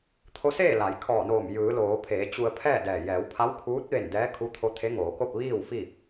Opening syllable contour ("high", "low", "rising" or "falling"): rising